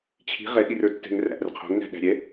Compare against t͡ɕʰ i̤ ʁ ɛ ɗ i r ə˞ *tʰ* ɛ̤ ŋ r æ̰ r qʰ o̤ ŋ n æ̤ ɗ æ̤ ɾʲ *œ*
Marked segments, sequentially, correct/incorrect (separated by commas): incorrect, incorrect